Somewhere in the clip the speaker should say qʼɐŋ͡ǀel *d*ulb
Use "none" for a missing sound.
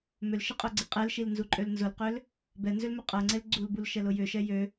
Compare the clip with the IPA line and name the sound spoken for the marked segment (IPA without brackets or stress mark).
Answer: ɡ͡ǀ